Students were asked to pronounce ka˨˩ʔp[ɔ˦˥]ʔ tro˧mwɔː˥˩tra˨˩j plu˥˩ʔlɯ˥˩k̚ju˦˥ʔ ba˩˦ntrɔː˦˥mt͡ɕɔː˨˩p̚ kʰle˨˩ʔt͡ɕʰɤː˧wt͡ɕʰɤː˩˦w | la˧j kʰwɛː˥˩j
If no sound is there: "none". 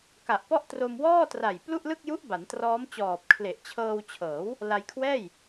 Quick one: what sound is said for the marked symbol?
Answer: ɔ˥˩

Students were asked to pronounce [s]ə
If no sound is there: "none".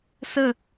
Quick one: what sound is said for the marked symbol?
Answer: s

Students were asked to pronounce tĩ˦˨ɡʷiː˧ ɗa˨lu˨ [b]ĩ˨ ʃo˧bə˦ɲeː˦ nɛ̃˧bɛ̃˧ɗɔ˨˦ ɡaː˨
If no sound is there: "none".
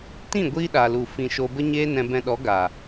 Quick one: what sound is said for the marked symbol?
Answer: f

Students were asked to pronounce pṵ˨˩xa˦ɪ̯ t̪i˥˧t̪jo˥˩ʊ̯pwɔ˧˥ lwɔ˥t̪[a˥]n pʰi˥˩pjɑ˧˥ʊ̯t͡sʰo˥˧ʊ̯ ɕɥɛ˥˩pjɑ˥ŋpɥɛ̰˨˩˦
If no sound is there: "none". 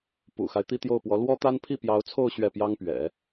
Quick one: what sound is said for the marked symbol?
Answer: a˥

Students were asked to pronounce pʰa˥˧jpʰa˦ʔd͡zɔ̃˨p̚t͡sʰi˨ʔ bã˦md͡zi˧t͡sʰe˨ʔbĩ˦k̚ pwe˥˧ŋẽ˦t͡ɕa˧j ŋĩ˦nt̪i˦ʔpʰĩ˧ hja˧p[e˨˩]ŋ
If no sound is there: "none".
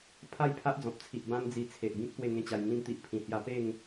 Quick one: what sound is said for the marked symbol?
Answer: e˥˧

